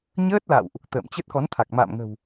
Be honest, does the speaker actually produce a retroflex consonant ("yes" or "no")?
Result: no